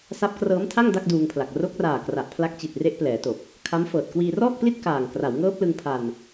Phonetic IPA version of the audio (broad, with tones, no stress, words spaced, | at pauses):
sa˦˥p̚krɤː˦˥mtʰa˥˩ŋ da˥˩k̚duː˧ŋpʰla˨˩k̚ ro˦˥k̚raː˨˩ kra˨˩ʔpʰla˦˥k̚t͡ɕi˨˩t̚ re˦˥ʔplɛː˩˦to˨˩k̚ | kʰa˦˥mfɤː˨˩t̚ kwiː˧rɔː˥˩k̚pli˥˩t̚ kaː˨˩ŋ kra˩˦wŋɤː˦˥p̚lɯ˧ŋ pʰa˧n